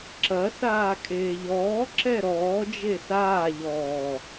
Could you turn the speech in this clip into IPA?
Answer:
ǁ ɐ s aː kʼ eː ʎ ɔː ǁ ɛ ɾ ɔː d͡ʒ e s aː ʎ ɔː

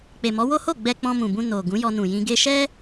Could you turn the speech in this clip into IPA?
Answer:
k͡p e˨ m ɔ˨˦ w o˦ h o˦˨ ɡ͡b ɛ˧ k͡p ɔ̃˧ m ũ˨ b ũ˧ n o˨ ɡ ũ˨˦ j ɔ˧ n ũ˨ j ĩ˧ ɡ e˧ ʃ ɛ˦

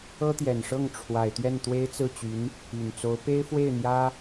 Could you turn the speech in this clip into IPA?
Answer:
ɤ˥ t̪ j ɛ˨˩ n ʂ ɤ˥˩ ŋ ʈ͡ʂʰ w a˨˩ ɪ̯ t̪ ɥ ɛ˥˩ n t̪ w e˥ ɪ̯ t͡s ɹ̩˥˩ t͡ɕ y˧˥ n | y˨˩ n t͡s o˧˥ ʊ̯ p e˥ ɪ̯ f w e˥˩ ɪ̯ n̪ j ä˥

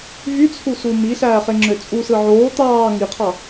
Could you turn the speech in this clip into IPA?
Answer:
v y t͡sʰ u s u m i ɬ æː χ e ŋ͡ǁ ø t͡sʼ u s ɯ ʕ oː t̪ ɑː ŋ i qʰ ɑ

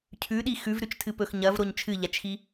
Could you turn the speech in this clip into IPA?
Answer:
cʰ ʉ ɗ i x ʉ v ɾ ʉ t͡ʃ tʰ ɨ p ɵ x ɲ ɐ v ɾ o ɲ t͡ʃʰ ɨ ʎ a t͡ʃ x i

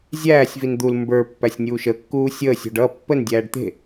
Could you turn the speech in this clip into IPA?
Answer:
zʲ æː sʲ v i n d̪ u l m b ə˞ pː æ sʲ nʲ uː ʃ ə kː uː sʲ əː sʲ o̤ ɖ ʌ pː ə n dʲ æː ɖ t̪ e̤

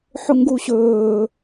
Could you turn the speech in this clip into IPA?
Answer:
ħ ʊ ŋ ɡ u ɕ ɵː

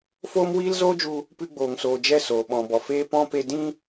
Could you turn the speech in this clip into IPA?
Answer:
f oː˦ m w iː˦ l z oː˦ d͡ʒ u˧ | p ɨ˧ ɡ͡b oː˨ ŋ s oː˨ d͡ʒ ɛ˦˨ s oː˨ ɓ ɔ̃˨ b ɔ˨ f eː˧ p ɔ̃˧ p e˧ d ĩ˦

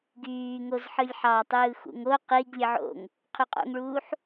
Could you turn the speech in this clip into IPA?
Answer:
ɡ yː ŋ o z ħ ɯ lʲ ħ ɑ tˤ ɯː x ṵ ŋ o q i ɡ lʲ ɯ ʕ o̰ ŋ | qʰ y qʼ o̰ ŋ ɭ uː ħ

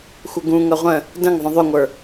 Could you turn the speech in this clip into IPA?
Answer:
xʷ ə ɡ ũ ŋ ʌ ʁʷ ə̃ | d ə̃ ŋ ðˤ ə̃ ðˤ ʏ ŋʷ ə˞

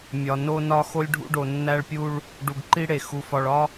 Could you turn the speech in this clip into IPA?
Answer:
mʲ ɒ˨ n o˦ n ɒ˦ x o˦ lʲ ɖʱ ṵ˦ ɖ o˨ nː æ˦ ɭ pʲ u˦ ɭ | ɖ u˨ ɡ ǃ i˦ ɽ e˨ x u˨ f ɒ˨ ɭ ɒ˦

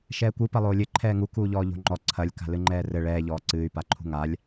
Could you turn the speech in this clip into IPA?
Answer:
ʃ ɛː kʷ ɨ p ɐ lˠ oː lʲ ɘ ǃʰ ɛː ŋ u k uː ʎ ɔː ʎ o̤ ŋ͡ǃ ɔ ǀʰ ɐ lʲ k a̤ l ɨ ŋ͡ǃ ɛː r ɘ ɭ ɛː ʎ ɔː ǀ ɨː y̯ p a ǃʰ ṳ ŋ a lʲ

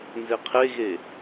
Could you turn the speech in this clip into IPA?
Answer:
n z e qʰ e ɣ e

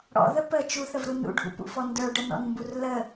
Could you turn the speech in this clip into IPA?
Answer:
ɽ ɔ̰ ð ə p ə t͡ʃ u θ ə v ɾ u n ṵ ɖʱ ṵ p ṵ f ɔ n d ə˞ ɖ ə n ɔ̰ n m b u r l ə

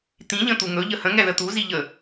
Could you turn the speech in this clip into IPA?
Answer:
t̪ ĩ ʎ ə̃ t̪ u ŋ ɵ ʎ ə h ə̃ ŋ ɛ ð ə t̪ u z i ʎ ə

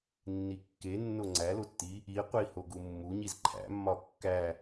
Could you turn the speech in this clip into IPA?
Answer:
nː i kː e nː o ŋ͡ǀ æ l o tː i | i qʷ i h o ɡ u mː u ɲ i z ǃʰ æ̰ mː ɒ kː æ

